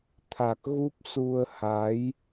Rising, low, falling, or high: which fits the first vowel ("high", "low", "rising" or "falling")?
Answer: low